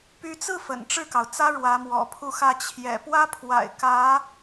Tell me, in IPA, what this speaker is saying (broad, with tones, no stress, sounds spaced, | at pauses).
p y˧˥ t͡s ɹ̩˥˩ f ə̰˨˩ n ʈ͡ʂ ɻ̩˥˩ k ɑ˩ ʊ̯ t͡s ä˥ ɻ w ä˧˥ m w ɔ̰˨˩ pʰ u˥˧ x ä˥˩ t͡ɕʰ j ɛ̰˨˩ p w ä˥ pʰ w a̰˨˩ ɪ̯ k ä˧˥